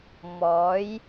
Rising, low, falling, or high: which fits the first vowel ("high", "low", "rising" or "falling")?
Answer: rising